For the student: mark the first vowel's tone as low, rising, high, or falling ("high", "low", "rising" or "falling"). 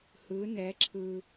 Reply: rising